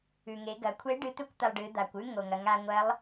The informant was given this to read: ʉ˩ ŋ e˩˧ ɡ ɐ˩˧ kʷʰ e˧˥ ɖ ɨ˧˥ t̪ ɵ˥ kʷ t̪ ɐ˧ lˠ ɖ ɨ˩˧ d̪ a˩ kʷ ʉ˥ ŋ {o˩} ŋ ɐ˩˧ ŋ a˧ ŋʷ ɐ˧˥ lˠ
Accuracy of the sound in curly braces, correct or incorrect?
correct